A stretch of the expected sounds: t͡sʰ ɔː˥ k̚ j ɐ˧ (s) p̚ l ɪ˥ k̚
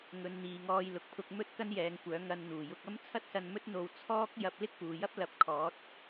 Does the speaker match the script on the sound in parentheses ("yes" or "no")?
no